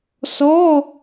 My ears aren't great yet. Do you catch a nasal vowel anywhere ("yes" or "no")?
no